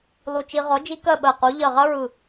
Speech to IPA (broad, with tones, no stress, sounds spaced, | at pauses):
lˠ u˧ t͡ʃ i˧ ʁ ɔ˨˥ d͡ʒ i˦˥ k ɜ˥˨ ɓ ɜ˧˩ q u˨˥ ʎ ɜ˧˩ ʁ ɐ˦˥ ɹ ɯ˧˩